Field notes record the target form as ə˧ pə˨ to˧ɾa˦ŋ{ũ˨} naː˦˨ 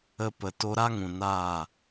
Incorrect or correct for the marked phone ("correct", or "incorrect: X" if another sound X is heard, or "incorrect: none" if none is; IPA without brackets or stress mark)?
correct